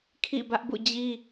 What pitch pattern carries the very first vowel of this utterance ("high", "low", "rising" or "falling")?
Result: falling